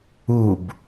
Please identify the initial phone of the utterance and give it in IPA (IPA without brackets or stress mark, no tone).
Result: u